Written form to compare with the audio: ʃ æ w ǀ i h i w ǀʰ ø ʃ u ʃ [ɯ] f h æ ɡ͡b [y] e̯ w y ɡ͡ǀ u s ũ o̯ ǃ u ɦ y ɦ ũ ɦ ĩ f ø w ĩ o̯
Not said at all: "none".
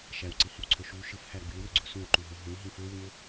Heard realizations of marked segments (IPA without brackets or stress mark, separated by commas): ɯ, y